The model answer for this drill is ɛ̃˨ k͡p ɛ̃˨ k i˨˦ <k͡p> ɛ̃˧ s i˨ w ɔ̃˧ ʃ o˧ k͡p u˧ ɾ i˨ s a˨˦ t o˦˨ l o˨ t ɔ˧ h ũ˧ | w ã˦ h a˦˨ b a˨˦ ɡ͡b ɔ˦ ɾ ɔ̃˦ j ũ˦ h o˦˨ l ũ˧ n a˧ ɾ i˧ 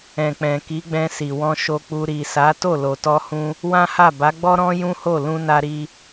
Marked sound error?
yes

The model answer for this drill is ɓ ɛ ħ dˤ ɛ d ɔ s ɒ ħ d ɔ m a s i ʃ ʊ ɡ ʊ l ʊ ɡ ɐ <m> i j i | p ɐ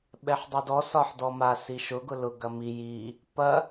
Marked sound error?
no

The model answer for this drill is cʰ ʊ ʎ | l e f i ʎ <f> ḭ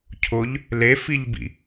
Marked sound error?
yes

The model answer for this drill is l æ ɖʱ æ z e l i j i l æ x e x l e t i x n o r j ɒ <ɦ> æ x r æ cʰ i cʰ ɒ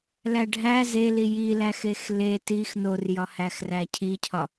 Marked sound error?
yes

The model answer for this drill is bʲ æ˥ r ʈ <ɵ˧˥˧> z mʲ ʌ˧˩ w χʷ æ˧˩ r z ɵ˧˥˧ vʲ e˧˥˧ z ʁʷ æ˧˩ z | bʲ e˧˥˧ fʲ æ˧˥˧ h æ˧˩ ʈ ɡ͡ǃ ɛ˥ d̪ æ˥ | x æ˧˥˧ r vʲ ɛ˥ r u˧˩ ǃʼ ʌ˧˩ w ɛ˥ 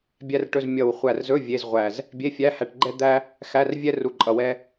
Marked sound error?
no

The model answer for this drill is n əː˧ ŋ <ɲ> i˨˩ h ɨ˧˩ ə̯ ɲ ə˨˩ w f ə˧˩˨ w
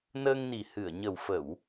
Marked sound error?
yes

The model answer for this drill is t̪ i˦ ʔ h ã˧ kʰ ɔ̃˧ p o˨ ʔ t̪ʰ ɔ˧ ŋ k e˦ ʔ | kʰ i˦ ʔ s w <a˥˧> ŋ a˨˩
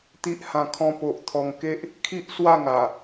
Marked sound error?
no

